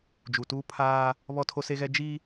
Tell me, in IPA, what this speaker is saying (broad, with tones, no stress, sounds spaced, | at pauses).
d͡ʒ u˨ t uː˦ pʰ aː˦ | β ɔ˦ tʰ o˦ s e˦ ɣ ɛ˦ d͡ʒ i˦